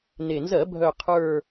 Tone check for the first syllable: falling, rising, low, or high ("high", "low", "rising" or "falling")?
low